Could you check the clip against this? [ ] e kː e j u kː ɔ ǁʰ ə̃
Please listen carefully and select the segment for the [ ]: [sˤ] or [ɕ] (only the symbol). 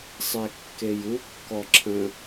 sˤ